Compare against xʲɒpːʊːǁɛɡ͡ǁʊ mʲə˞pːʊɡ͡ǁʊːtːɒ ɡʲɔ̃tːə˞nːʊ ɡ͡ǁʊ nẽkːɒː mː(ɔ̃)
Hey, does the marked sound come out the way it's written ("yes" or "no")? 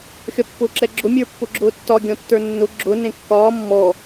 no